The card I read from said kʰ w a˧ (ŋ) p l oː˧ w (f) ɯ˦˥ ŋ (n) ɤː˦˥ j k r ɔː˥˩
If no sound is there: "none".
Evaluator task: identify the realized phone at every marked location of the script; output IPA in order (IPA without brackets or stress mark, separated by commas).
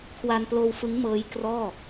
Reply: n, f, m